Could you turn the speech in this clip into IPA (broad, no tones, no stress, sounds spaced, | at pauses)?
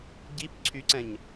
ɟ i p ǀʰ y ǀ ɛ̃ ɲ